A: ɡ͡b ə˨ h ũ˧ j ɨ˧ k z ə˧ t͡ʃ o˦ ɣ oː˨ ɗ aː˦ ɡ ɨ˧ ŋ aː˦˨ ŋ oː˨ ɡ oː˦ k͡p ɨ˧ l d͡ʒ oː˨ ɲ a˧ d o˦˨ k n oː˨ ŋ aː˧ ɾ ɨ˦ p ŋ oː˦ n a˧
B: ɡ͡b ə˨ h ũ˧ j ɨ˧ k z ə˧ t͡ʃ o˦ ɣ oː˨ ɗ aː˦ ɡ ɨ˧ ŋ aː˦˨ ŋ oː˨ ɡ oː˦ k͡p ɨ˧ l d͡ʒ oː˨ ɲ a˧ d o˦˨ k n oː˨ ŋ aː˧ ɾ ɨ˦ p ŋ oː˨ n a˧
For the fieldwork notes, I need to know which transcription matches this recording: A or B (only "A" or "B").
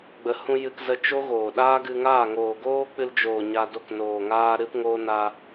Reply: A